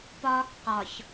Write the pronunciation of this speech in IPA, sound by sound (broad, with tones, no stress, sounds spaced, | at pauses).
p ɒː˦ k q ɒ˨ ç